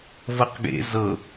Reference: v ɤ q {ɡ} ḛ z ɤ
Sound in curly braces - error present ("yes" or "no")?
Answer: no